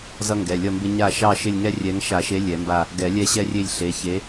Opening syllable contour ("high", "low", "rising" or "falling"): high